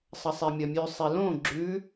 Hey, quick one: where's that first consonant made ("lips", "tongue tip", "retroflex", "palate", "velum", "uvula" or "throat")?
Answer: tongue tip